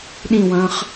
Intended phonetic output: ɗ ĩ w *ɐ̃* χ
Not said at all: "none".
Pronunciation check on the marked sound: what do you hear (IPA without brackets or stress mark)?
ɐ̃ː